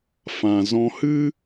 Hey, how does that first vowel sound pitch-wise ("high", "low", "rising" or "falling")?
low